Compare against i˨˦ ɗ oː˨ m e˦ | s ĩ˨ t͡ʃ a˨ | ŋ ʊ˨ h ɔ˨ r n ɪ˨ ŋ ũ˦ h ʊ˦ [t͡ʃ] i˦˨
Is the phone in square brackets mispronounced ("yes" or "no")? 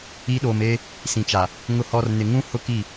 yes